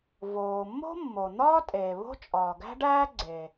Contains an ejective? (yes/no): yes